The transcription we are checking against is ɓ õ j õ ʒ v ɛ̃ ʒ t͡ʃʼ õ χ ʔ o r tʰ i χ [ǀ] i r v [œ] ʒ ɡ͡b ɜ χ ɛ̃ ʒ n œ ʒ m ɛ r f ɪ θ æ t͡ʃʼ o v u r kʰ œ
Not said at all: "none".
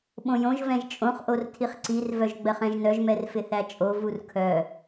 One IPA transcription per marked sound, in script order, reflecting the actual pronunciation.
ǀ, œ

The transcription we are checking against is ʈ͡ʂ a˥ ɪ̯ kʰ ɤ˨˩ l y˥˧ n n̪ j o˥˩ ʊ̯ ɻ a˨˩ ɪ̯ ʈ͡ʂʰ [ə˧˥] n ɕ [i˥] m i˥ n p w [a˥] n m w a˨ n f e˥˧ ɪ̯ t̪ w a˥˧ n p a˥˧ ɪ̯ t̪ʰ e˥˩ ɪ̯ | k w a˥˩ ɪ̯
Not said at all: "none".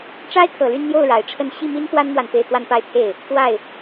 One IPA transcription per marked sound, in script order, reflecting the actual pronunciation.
ə˥˧, i˥˩, a˥

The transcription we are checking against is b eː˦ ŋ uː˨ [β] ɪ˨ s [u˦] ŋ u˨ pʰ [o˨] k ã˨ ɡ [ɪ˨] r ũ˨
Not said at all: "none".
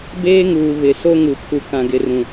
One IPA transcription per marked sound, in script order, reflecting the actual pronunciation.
β, o˦, u˨, ɪ˨

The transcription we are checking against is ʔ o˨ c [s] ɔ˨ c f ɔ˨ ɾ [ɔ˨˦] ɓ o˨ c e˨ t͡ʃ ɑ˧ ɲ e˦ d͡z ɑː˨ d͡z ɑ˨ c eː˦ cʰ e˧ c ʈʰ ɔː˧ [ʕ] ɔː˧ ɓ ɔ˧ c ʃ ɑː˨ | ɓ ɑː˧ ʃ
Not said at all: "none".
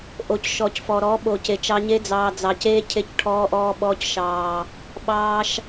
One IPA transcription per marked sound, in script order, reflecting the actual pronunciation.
ʃ, ɔ˨˦, ʔ

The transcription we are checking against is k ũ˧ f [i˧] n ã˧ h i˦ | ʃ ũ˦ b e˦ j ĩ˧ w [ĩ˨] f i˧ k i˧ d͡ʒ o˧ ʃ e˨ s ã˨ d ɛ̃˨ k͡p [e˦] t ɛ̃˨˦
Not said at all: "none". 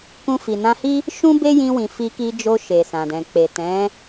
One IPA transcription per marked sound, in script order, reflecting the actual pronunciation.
i˨, ĩ˨, e˨

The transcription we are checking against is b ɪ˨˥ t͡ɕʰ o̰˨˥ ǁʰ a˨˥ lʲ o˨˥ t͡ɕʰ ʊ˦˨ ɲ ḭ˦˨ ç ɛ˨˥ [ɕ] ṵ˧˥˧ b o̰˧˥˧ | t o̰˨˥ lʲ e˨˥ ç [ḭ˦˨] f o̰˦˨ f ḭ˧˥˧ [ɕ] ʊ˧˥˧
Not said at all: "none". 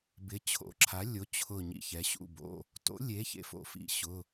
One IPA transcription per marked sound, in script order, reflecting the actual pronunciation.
ɕ, ḛ˦˨, ɕ

